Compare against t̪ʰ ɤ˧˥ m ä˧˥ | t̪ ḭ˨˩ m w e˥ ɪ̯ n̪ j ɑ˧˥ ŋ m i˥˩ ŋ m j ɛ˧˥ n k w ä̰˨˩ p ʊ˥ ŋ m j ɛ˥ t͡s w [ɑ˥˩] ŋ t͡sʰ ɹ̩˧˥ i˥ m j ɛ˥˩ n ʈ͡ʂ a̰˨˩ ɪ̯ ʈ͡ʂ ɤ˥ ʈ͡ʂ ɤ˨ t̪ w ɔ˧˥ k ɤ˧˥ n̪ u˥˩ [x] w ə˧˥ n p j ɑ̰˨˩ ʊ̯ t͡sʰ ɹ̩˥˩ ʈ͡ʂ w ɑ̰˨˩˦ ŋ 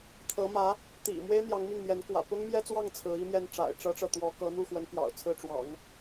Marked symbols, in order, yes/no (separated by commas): yes, yes